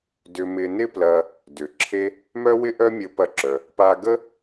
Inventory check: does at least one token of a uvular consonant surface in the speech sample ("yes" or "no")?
no